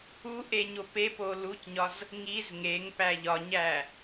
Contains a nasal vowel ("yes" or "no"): no